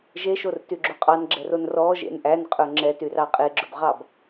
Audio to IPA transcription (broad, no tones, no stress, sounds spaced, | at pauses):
ʒ e ʃ o r t y ɡ͡ǁ o qʼ ɑ n ɡ͡ǁ ɛ r o n r ɔ ʒ ḛ n ʔ æ n qʼ ɵ ŋ͡ǁ ɛ t y r ɑ qʼ e ɡ͡ǁ ɵ b ʁ ɑ b